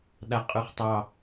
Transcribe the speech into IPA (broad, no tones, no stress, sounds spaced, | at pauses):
ɗ a qʼ ʉ χ tˤ ɑ